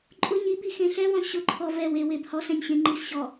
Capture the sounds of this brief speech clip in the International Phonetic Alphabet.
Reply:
ǃʼ ʊ ɲ i b i x ẽ ɬ ɛ w ɔ̃ ɕ ʊ ǃʰ ɔ v ɛ w e w e b h ɔ s ɛ̃ nʲ ɕ ẽ ŋ͡ǃ i s ɕ ɔ

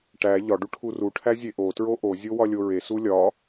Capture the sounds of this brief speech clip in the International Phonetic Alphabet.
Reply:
ʈ æ ʎ ɒ ɖ u ʈʰ u r u ʈʰ æ zʲ e ʔ o t ɹ o ʔ o zʲ o w ɒ lʲ o ɹ e s u lʲ ɒ

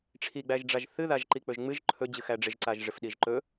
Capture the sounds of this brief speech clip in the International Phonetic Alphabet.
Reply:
ʈ͡ʂʰ i ɡ͡b æ ʒ ɖ͡ʐ a ʒ θ ɨ ð a ʒ ǃ i k͡p ɵ ʒ ŋ͡m ɨ ʒ ǃʰ ɵ d͡ʑ ɨ x æ ɖ͡ʐ ɪ ʒ ǀ a ʒ ʐ ɪ f ɗ i ʒ ǃ ɵ

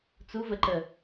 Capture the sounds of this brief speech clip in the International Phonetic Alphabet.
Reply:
t͡s u v ə ǃ ə

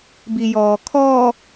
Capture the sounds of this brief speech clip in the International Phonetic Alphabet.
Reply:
b i j ɔː kʰ ɔ

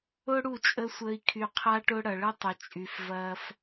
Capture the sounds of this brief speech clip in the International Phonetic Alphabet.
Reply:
ʊ˦ ɽ u˦˨ t͡ʃʼ ə˦ sʷ əː˧ i̯ kʰ y˨ qʰ a˧ ʈ ʊ˧ ɽ ɐ˨ ɭ ə˦ tˤ ʊ˨ t͡ʃʼ y˨ f v ɐː˧ f

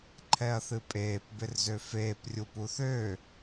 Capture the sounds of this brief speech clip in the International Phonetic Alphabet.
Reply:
ǃʰ ɛ ɐ̯ θ ɨ pʼ eː p b ɪ r z ø f eː p rʲ u p u θ ø

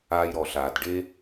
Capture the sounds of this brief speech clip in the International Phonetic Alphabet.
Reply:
aː˧ j ɾ ɔ˨ ɬ aː˨ d ɖ e˦

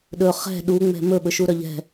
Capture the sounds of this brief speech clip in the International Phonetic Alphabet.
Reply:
ɗ ɵ χ ɛ̤ ɗ u ŋ͡m ɛ̤ m ɵ ɓ ɵ ʃ u ɾ œ ʎ ɛ̤

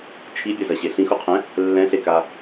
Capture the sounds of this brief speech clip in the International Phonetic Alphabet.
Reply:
t͡ʃʰ i bʲ ɐ z ɐ ɕ e ɬ ĩ x u qʰ ɛ̃ | lː ɛ̃ ɬ e k a

